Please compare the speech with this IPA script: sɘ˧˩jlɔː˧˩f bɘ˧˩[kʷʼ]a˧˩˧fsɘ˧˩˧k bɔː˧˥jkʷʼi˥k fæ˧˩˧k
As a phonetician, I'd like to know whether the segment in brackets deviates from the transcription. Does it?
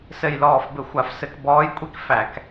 yes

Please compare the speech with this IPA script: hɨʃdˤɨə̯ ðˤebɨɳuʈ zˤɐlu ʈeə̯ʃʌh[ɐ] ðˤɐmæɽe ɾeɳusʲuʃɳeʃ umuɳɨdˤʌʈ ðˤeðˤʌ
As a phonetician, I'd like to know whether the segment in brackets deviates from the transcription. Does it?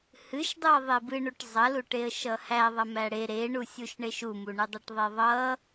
yes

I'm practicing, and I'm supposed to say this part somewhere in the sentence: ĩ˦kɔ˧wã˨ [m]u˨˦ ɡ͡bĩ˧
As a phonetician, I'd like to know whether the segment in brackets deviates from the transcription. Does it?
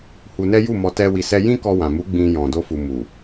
no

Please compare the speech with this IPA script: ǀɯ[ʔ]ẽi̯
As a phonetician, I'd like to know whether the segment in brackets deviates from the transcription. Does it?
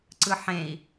yes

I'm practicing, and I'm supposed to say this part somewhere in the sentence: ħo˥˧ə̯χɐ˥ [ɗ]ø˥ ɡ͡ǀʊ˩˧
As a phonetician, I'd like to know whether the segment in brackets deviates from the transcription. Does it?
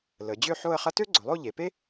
yes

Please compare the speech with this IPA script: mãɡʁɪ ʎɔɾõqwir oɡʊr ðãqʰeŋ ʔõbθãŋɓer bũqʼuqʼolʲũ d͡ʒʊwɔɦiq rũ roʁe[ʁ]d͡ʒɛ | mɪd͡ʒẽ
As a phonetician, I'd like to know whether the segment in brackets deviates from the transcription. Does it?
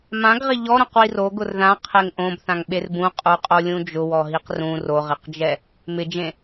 yes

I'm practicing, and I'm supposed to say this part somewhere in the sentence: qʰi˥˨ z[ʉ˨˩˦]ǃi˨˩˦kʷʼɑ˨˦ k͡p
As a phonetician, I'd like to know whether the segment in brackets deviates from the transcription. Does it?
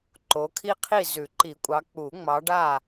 no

